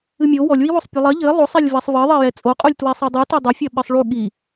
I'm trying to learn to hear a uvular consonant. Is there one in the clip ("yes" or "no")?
yes